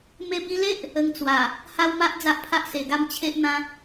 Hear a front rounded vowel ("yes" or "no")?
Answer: no